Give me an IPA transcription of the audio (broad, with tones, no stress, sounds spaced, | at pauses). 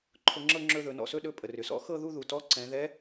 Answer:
ǃʰ ʊ˧ ŋ͡ǁ ɤ˥˧ ŋ͡ǁ ɵ˧ ð ɵ˩˧ n ɔ̰˩ s ɵ˥˧ ɗ ɵ˧ pʼ ə˩ r ʏ˩ s ɔ̰˧˥ x ɤ˥˧ ð u˥˧ ð u˩ t ɔ˧˥ ǀ ɛ̃˩˧ ð ɛ˧˥